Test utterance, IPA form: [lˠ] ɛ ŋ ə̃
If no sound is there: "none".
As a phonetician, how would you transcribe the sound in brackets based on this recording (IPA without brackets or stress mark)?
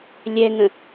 lʲ